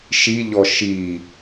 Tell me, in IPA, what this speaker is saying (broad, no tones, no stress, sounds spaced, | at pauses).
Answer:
ʃ i ʎ ɔ ʃ i